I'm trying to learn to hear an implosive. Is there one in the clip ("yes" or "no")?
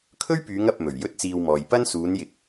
no